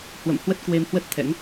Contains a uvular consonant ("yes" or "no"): no